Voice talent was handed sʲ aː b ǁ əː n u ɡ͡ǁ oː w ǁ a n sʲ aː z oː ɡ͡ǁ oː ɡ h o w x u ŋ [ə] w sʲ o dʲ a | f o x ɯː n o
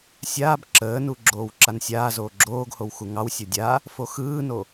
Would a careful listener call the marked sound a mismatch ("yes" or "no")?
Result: yes